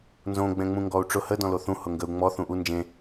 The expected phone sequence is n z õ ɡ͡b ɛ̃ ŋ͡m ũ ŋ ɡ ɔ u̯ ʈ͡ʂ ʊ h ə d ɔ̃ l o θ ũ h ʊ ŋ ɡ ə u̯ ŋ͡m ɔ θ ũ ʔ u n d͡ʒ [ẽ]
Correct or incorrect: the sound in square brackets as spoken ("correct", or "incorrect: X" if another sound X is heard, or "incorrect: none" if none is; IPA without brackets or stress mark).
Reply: correct